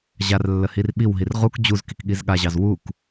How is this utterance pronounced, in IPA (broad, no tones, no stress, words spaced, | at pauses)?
ʑarlːə hirɓiwɦir ʁuk d͡ʑuz kikɠizɠaʑɑz wuk